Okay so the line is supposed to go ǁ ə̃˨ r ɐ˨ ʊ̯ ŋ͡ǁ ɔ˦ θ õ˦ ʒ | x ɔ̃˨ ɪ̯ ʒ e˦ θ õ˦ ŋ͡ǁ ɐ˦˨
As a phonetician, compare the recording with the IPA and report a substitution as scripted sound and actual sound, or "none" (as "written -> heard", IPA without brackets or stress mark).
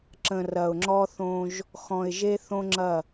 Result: none